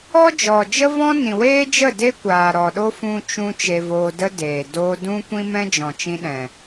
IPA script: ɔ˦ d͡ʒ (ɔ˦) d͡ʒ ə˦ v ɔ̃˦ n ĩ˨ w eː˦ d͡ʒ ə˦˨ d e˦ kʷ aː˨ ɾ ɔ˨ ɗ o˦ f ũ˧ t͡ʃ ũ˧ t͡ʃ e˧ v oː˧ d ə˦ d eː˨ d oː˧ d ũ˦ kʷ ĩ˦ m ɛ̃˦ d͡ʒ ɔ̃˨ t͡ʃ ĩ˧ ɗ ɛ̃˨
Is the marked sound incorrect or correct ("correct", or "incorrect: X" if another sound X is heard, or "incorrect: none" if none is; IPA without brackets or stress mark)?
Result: incorrect: ɔ˨